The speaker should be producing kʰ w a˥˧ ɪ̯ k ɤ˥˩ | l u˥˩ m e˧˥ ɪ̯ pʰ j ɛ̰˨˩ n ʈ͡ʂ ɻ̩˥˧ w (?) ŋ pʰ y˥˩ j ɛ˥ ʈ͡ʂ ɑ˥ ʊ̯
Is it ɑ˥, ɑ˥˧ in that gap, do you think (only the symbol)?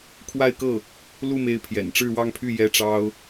ɑ˥˧